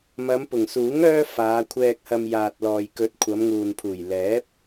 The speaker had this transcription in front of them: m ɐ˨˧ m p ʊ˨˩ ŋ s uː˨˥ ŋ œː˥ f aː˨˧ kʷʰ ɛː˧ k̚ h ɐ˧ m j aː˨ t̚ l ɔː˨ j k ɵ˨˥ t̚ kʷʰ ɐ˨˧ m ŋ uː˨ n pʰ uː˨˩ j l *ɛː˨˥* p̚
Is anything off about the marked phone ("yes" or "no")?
no